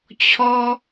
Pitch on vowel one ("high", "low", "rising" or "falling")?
high